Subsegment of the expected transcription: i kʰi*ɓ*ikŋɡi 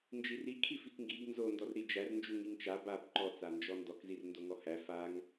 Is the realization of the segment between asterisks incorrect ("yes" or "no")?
yes